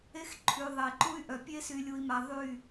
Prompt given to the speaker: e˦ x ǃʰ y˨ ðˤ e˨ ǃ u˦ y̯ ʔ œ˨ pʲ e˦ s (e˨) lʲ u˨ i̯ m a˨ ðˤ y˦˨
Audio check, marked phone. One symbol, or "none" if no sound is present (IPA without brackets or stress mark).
y˨